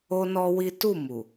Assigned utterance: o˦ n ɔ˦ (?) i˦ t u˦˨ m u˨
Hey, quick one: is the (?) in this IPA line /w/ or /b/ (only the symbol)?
w